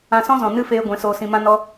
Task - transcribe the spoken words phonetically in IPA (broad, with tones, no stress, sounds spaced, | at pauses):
ã˧ s ɔ̃˦ z ɔ̃˨ n ɨ˦ f eː˧ ɡʷ ɛ̃˨˦ s oː˧ s ĩ˧ m ã˦ n ɔ˦